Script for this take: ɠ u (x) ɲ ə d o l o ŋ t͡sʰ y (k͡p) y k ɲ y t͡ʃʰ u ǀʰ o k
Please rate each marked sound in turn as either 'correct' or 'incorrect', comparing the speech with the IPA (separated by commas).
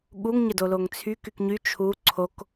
incorrect, incorrect